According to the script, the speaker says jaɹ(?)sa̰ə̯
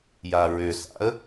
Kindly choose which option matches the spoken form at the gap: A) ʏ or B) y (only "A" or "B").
A